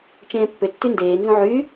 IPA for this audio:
t͡ʃẽːpːʏtːy ndeː nzũʕy

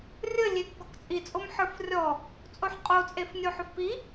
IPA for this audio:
rʲəlʲek ɡɔkt͡sʼit͡sʼom ħə˞frʲɔ | t͡sʼoħqʼot͡sʼef nʲoħʊfpi

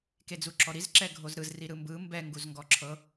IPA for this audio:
ked͡zuǁɔɾiz ǁɛɡʱozɾɯz riɾɯmbɯ mbɛ ŋɡuzŋɡɔǁʰɤ

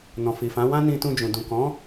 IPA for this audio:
nɔ̃˨fi˨fã˨˦ wã˦nĩ˧tũ˧ d͡ʒũ˨dũ˨ kɔ̃˨˦

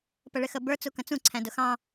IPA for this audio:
pəɭɪxəbə˞ t͡sukə̃t͡sũ ǀʰæ̃dʊxɑ̃

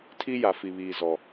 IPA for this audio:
tʰi˦ja˨ fi˨βiː˨ zɔ˨

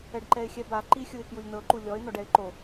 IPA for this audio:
ɛɖǃɛɪ̯xʲɛba ǃixʲɯɪ̯kjulʲnɤ ǃulʲɔɪ̯ nɔɖɛɪ̯ǃo

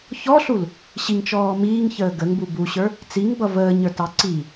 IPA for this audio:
çɔɬul | ɕiŋt͡ʃɔː miːŋçəː ɡəŋbu buɕə˞ | t͡siŋbʌ vəːɲə˞tɑ ǀi

